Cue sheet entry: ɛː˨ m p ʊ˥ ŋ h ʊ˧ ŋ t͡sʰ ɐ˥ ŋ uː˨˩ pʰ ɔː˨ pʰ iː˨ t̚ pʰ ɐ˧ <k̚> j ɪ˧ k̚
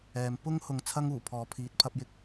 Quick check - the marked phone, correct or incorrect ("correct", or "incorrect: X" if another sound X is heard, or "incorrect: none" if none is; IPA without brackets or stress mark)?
incorrect: p̚